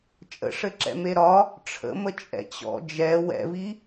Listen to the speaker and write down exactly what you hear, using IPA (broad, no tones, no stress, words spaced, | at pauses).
t͡ʃʼə̰ʂɘǁɛ̰me ɾɒ | ʈ͡ʂʰə̰mə t͡ʃʼɛ̰t͡ɕɔ̰ d͡ʒɛ wɛ̰vi